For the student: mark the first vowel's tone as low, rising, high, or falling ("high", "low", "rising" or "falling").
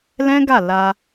high